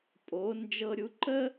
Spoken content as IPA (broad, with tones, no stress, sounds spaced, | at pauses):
pʼ o˩˧ n d͡ʒ ɤ˧ ɾʲ u˧ ǃ ə˥